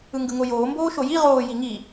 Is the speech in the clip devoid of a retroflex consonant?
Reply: yes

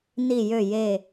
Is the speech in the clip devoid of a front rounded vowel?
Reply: no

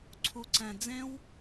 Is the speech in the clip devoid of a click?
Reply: no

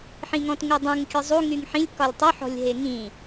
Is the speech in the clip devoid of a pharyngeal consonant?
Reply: no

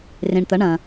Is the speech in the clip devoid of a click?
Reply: yes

